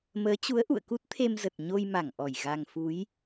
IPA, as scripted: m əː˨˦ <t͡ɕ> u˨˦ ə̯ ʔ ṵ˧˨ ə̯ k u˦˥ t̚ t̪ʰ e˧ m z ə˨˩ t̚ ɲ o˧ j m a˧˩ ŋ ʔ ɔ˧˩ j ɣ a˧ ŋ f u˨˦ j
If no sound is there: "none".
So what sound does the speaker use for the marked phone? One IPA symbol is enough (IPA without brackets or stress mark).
t͡ɕ